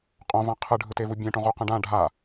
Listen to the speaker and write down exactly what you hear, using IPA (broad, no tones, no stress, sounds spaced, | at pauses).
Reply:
qʼ õ v ã qʰ ɯ ɖʱ ɯ t e v u bʲ ɛ̃ ʈ õ ʁ u q ɛ̃ ɖ ã ɖʱ a